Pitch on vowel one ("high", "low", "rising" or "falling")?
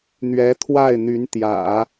rising